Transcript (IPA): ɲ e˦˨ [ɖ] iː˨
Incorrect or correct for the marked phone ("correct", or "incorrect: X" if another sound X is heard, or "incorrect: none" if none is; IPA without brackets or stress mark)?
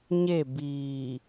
incorrect: b